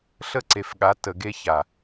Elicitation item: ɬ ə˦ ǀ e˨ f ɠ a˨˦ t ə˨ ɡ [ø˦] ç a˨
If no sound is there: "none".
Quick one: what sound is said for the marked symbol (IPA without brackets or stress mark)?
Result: e˦